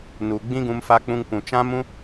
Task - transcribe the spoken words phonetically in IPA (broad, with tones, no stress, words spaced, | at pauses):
nu˨ ɡ͡bĩ˦ɡũ˧mfa˧k͡pũ˧ŋ pũ˨t͡ʃã˦mũ˦